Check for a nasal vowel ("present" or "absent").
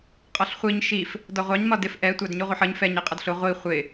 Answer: absent